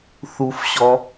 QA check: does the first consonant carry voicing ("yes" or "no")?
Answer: no